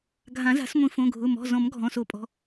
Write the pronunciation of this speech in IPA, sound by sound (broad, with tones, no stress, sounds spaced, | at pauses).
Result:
ɡʱ ã˨˩˦ z a̤˨˩˦ s ŋʷ ĩ˨˩˦ f õ˩˧˩ ɡʱ ʊ˩˧˩ m ɔ̤˩˧˩ z ɔ̃˨˩˦ m ɡʱ ɔ̃˩˧˩ s o˨˩˦ pʼ ɔ̤˩˧˩